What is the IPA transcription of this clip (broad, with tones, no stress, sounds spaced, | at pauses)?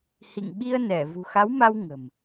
h ḭ˧˨ ŋ ɓ i˧ ə̯ n ɛ˧˩ v ṳ˨˩ x a˨˦ w m a˧ w ŋ ə̤˨˩ m